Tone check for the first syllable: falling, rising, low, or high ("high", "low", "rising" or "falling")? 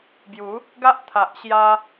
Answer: rising